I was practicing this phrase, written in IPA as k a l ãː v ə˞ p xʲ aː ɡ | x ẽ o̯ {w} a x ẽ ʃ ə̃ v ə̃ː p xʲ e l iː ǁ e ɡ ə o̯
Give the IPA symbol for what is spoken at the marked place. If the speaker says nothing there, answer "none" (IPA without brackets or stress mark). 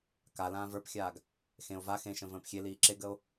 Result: v